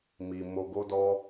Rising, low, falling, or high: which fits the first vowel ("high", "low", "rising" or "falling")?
low